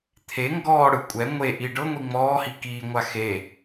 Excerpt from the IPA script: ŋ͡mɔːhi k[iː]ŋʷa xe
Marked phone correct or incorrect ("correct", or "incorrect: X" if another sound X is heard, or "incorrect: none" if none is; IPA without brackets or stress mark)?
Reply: correct